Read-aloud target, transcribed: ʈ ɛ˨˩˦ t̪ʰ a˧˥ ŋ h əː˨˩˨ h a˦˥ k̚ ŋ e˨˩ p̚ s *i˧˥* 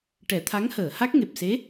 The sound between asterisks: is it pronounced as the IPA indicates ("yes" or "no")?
no